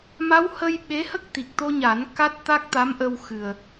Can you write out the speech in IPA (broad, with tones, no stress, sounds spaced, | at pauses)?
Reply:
m a˧˥ w h ə˧ j ɓ e˧˥ h ə˦˥ k̚ t̪ i˨˩ k̚ t̪ o˧ ɲ a˨˩˦ n k a˦˥ t̚ t̪ a˦˥ k̚ t̪ a˧˥ m ʔ ə˧ w x ɨ˨˩ ə̯